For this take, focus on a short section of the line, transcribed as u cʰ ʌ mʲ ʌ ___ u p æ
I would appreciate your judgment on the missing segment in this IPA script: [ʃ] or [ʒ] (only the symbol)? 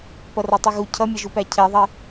ʒ